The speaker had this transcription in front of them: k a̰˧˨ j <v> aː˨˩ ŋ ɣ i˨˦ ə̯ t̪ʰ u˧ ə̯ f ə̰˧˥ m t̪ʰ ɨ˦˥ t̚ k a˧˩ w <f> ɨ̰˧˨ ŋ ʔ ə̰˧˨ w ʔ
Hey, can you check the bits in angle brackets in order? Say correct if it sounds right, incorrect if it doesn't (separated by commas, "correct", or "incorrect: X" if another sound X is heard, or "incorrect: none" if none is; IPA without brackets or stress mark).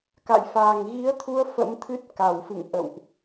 incorrect: f, correct